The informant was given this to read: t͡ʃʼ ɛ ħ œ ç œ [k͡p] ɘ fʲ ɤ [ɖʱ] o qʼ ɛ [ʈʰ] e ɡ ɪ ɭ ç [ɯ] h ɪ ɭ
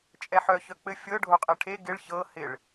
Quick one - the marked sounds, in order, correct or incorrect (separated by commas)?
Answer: correct, correct, correct, incorrect